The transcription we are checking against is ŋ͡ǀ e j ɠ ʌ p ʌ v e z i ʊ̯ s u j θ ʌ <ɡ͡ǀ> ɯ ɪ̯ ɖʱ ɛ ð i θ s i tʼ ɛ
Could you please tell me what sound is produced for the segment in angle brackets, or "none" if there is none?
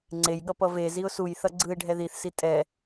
ɡ͡ǀ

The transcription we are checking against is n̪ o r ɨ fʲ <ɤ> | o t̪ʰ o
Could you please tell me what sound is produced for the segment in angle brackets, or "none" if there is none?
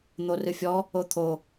ɔ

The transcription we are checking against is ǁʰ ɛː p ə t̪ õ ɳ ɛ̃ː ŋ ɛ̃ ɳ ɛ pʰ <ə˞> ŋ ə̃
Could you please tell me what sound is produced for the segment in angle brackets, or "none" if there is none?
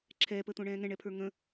ə˞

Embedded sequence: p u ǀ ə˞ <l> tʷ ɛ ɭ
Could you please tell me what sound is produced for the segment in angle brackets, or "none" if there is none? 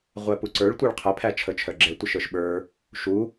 ɭ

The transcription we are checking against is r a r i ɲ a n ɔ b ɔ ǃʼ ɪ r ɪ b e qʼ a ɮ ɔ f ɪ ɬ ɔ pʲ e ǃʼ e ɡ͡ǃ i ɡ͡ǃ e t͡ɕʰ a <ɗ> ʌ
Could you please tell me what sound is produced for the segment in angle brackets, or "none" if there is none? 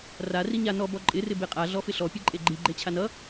n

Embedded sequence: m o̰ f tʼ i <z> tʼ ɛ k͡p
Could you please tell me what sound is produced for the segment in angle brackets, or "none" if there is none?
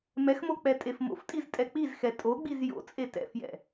z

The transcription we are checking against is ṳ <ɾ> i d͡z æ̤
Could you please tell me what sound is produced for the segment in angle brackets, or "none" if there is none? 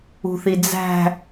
θ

